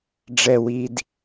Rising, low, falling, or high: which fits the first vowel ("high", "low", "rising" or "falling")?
low